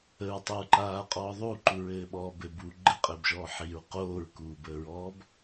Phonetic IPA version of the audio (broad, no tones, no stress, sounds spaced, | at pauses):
ə ɹ tˤ ɘ ɹ ǃ aː qʼ ɔː ðˤ u ǃ u ɹ ɘː ɓ ɔː b ɘ b u ɡ͡ǃ ɘ qʼ ɘː b ʒ ɔː ħ i ɹ q oː ɹ k uː b əː ɹ ɔː b